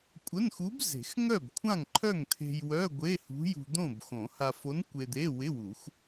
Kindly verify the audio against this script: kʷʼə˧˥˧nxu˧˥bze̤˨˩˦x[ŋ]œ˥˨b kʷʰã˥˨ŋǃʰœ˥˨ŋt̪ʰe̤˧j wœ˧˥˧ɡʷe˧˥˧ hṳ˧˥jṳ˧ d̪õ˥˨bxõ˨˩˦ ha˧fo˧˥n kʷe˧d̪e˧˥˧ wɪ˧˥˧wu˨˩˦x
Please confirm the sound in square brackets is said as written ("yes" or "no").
yes